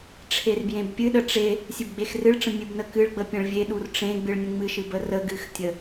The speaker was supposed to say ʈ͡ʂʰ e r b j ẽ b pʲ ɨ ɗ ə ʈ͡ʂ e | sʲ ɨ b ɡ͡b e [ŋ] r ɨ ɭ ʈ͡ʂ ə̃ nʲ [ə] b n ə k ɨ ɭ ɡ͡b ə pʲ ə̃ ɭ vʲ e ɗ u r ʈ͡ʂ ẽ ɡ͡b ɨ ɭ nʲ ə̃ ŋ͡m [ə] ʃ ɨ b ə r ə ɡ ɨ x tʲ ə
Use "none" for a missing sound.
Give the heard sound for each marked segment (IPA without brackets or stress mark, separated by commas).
x, ɨ, ɨ